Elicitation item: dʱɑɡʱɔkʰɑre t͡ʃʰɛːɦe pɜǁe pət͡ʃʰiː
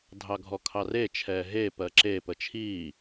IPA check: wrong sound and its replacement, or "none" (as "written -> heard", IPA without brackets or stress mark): none